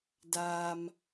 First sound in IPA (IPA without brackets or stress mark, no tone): d